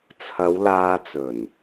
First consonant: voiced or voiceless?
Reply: voiceless